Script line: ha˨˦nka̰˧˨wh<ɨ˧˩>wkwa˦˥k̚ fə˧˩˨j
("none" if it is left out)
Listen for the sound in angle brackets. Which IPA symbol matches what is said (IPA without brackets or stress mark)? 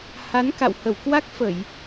ə˧˩